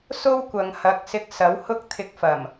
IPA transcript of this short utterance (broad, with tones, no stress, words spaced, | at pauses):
so˥wkʷɐ˨ŋhɐ˨˥k̚ sɪ˧k̚ sɐ˨˥whʊ˥k̚ t̪ʰɪ˧k̚fɐ˨˩m